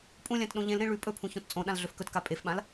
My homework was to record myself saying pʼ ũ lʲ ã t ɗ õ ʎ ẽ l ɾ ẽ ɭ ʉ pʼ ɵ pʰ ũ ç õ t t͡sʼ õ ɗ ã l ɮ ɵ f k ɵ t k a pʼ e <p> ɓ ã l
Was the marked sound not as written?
yes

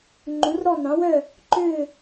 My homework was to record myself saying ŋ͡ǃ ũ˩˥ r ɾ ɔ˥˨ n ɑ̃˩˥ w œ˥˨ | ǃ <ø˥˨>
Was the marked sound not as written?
no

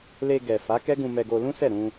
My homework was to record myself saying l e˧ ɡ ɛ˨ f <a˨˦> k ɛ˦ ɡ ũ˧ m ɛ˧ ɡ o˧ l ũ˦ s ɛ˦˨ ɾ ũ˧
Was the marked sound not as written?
no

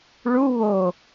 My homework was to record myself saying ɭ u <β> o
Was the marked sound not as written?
no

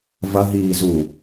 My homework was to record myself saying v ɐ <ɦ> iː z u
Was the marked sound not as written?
no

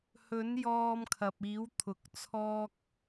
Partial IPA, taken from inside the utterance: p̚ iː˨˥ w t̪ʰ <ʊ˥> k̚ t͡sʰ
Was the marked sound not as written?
yes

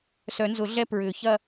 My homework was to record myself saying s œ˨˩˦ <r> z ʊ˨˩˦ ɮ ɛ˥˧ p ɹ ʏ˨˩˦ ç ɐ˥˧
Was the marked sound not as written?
yes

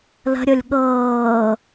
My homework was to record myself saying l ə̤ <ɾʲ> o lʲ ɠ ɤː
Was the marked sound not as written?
no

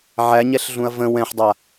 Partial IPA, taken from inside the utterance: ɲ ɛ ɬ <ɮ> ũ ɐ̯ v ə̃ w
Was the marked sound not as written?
no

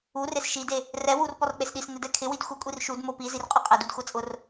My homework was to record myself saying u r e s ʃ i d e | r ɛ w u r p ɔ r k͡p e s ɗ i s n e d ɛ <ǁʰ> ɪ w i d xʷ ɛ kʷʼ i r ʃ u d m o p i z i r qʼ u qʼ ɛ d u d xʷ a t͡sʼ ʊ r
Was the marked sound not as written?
yes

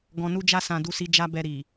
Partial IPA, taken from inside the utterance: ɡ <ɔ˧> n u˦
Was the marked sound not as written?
yes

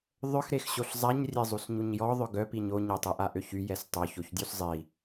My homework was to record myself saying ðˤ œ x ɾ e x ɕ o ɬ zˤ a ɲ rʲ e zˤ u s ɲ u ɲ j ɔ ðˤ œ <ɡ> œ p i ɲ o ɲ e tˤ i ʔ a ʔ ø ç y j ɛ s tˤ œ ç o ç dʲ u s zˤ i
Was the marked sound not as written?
no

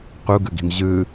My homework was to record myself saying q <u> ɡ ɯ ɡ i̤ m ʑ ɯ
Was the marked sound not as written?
no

